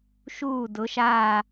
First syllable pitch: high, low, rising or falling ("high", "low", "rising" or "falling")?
falling